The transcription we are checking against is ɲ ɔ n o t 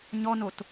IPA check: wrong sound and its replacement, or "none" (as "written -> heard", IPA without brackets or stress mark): none